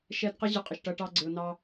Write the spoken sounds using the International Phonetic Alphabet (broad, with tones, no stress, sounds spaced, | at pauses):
ʃ ɛ˧ d q ə˦ ʑ ɪ˧ qʼ ɪ˨ ʃ ʈ ʌ˧ ʈ ɑ˦ ɡ͡ǀ ɪ˧ ʊ̯ n ɑ˦